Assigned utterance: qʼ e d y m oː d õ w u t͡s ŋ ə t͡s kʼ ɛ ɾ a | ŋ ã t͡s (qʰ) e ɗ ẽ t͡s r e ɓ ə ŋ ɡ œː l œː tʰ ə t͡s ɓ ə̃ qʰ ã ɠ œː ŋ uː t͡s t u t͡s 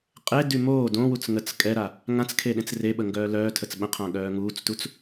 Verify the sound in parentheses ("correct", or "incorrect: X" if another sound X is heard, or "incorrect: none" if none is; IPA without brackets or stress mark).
incorrect: kʰ